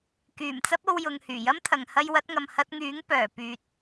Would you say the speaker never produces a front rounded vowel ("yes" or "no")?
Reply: no